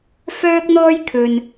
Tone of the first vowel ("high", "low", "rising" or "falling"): high